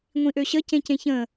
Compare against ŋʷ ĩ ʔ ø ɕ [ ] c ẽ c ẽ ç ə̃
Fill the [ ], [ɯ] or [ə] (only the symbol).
ə